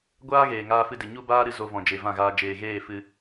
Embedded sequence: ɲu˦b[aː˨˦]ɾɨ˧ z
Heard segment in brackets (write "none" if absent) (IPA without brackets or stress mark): aː˦